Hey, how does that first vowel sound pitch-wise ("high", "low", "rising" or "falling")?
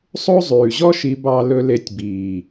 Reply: high